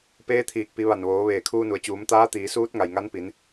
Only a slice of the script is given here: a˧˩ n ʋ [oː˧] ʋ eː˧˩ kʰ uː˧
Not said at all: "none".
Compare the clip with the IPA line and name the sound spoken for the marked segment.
oː˩˧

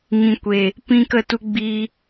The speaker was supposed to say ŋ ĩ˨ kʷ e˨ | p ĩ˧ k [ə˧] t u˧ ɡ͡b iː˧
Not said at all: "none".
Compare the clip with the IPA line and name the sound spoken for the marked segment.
ə˧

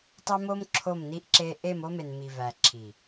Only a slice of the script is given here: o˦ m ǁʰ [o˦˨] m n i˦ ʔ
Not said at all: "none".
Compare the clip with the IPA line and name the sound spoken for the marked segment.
o˦˨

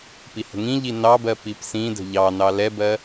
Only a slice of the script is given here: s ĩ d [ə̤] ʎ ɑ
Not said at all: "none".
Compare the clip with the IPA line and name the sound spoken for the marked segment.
ə̤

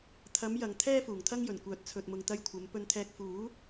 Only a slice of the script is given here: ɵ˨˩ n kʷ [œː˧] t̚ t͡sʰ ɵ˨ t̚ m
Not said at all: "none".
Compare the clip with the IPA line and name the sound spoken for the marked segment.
œː˨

